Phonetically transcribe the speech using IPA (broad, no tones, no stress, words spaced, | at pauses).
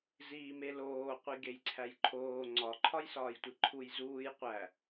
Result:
ziːmeloː qʷiɡejǀʰæjǃʰoː ŋ͡ǀɒ ǃʰɒjsɒːjtʷiǃʰuj zuːj qʷæ